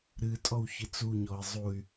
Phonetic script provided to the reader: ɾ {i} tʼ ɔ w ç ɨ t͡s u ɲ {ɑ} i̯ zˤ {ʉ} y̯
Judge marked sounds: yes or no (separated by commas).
no, no, no